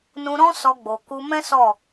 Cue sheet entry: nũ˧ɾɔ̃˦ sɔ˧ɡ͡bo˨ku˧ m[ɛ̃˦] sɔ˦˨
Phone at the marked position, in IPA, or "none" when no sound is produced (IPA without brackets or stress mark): ɛ̃˦